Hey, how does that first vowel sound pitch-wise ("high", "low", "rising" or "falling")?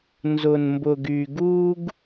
low